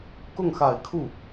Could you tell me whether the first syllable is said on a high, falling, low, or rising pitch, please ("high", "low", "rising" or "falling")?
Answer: falling